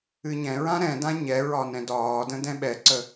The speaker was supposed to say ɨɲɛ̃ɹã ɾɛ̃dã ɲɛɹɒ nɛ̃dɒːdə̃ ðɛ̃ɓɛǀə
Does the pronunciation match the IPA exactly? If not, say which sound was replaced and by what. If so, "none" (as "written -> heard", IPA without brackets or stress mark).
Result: ð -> d